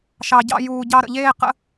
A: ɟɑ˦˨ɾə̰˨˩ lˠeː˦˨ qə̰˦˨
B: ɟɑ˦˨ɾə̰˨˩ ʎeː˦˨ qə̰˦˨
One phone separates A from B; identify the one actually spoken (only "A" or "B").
B